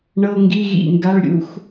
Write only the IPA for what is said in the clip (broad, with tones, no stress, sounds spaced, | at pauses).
ɳ ɤ˧˥˧ ŋ ɡ i˧˥˧ ɣ ḭ˦˨ ŋ ɡ a˧˥˧ ɭ ɾʲ ṵ˧˥˧ x